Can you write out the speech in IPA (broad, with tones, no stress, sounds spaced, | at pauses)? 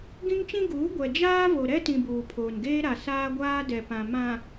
ɡ ĩ˦ ŋ t͡ʃ ĩ˦ ɡ uː˨˦ ɡʷ ɛ˨ d͡ʒ aː˦ v o˨ ɾ ɛ˦ t ĩ˨ b uː˨ pʰ oː˨ n ɡ eː˦ ɾ a˨ s aː˦ ɡʷ aː˦ d ɛ˨ p ã˨ m ã˨